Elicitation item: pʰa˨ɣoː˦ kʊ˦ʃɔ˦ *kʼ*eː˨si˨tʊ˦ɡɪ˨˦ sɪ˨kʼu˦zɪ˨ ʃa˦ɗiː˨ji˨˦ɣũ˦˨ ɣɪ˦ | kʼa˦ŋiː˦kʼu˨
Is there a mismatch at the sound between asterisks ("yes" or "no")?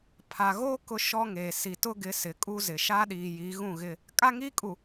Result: yes